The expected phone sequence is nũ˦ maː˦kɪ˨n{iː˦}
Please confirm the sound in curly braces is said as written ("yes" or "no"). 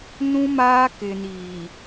no